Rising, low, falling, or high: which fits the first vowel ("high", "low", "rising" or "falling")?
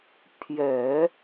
low